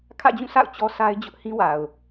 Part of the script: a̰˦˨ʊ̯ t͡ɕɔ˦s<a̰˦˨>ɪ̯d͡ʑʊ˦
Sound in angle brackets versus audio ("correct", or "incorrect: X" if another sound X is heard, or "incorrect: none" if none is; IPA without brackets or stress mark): incorrect: a˦